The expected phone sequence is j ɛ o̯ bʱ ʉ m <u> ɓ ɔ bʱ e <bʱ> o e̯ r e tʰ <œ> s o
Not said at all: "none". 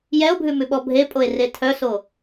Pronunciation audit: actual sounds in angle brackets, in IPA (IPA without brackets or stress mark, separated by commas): ʉ, pʼ, œ